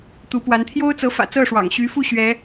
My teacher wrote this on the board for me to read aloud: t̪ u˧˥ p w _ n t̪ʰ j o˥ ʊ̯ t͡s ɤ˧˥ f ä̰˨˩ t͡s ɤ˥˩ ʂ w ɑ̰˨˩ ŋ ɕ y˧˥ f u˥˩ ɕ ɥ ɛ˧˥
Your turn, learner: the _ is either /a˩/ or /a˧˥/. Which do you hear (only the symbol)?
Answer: a˧˥